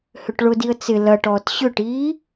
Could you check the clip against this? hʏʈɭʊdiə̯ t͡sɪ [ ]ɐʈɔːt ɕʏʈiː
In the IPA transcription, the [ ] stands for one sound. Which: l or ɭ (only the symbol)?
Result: l